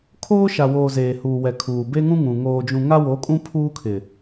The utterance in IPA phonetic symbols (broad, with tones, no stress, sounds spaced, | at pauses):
kʰ oː˦ ʃ a˨ w oː˨ z eː˨ h uː˨ w ɛ˨ kʰ uː˨ b e˦ ŋ ũ˦ ŋ ũ˨ ŋ oː˨ d͡ʒ ũ˨ ŋ a˦ w o˨˦ kʼ ũ˦ pʰ uː˦ kʰ ɪ˨